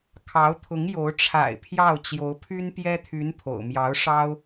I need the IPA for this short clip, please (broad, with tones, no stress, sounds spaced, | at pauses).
kʰ ɑ˧˥ ʊ̯ t̪ʰ ʊ˧˥ ŋ j o˧˥ ʊ̯ ʈ͡ʂʰ a̰˨˩ ɪ̯ pʰ j ɑ˥˩ ʊ̯ t͡ɕ j o˧˥ ʊ̯ pʰ y˥ n p j ɛ˥ t̪ʰ y˧˥ n pʰ o̰˨˩ ʊ̯ m j ɑ˧˥ ʊ̯ ʂ ɑ˥ ʊ̯